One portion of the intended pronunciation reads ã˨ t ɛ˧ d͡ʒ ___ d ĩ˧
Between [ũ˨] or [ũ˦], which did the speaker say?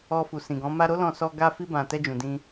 ũ˨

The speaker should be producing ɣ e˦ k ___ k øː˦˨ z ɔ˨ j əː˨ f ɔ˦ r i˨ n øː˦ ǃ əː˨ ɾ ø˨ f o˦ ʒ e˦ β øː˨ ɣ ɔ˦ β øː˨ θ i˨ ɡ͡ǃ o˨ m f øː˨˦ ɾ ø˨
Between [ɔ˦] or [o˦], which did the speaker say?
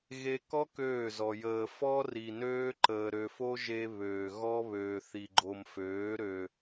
ɔ˦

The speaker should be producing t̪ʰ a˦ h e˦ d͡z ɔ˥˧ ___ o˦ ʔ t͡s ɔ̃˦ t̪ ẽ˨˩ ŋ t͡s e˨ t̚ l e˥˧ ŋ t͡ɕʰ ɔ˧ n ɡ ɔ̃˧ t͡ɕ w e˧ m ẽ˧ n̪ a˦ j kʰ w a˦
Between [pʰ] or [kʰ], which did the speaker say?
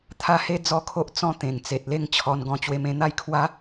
kʰ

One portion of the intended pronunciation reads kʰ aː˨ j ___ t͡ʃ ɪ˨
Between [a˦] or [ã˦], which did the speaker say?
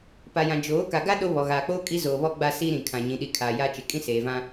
a˦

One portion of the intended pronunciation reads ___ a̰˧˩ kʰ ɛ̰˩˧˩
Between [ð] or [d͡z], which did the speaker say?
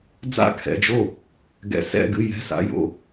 d͡z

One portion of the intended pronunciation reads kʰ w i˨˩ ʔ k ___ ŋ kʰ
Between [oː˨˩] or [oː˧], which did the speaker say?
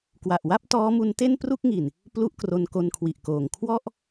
oː˨˩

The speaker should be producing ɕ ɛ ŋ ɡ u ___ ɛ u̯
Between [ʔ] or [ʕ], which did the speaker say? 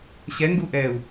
ʔ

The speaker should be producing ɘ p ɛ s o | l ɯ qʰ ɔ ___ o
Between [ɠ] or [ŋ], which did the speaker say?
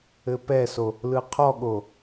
ɠ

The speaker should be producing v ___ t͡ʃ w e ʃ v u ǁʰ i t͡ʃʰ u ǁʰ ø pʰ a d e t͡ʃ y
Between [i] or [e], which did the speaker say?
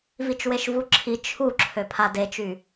i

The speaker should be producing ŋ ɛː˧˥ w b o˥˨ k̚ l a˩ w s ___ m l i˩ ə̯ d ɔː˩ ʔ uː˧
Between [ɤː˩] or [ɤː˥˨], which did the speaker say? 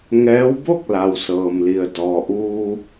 ɤː˩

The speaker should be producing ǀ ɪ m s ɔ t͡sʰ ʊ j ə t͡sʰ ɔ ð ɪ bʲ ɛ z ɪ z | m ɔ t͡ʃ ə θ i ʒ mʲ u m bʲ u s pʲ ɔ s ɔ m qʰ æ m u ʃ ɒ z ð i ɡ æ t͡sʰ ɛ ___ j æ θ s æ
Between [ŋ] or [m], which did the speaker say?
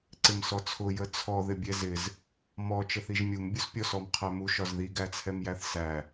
m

